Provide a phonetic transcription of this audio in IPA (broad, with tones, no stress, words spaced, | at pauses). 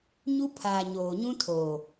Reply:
ɲu˦pʰaː˨ ɲoː˨ɲũ˦ tʰoː˨